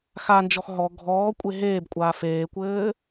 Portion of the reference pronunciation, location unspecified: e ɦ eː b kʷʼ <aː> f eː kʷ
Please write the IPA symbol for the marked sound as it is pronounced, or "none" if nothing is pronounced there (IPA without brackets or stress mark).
aː